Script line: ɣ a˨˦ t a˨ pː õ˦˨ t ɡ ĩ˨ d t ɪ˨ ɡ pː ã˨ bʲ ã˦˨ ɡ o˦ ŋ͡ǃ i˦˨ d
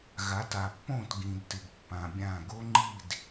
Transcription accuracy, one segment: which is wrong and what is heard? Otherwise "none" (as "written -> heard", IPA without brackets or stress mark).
none